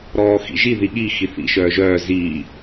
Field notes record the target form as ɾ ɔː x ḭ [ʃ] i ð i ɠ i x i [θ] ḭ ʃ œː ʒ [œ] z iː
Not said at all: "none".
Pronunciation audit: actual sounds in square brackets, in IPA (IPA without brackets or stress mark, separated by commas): ʒ, θ, œː